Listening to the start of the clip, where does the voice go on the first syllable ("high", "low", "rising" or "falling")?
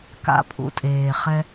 low